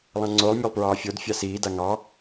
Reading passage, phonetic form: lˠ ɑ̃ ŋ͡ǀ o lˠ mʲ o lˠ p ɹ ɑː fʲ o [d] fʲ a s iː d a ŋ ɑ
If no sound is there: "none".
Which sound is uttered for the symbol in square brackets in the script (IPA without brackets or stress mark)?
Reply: d